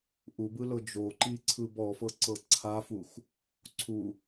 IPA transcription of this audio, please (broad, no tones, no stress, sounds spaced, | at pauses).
ʔ u b ɯ l ɤ d͡ʒ o ǃ i ǀʰ ɯ b ɔ f ɤ ǀ ɤ ǀʰ a f u x | ǀʰ u